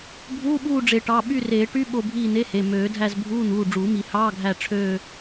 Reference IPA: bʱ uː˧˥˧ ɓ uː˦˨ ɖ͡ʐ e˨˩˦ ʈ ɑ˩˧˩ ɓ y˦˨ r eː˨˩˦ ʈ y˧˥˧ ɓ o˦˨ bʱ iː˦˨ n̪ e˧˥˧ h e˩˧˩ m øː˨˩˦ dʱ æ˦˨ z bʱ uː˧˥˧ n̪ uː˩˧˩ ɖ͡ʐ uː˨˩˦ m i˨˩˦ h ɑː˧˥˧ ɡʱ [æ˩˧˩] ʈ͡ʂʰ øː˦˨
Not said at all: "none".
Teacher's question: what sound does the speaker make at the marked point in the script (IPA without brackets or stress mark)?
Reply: æ˦˨